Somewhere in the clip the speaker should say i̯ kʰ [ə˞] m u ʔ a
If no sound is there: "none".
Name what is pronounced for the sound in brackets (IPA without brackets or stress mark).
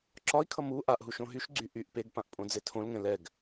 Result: ʌ